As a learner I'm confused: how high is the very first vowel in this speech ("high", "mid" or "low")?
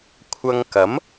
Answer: low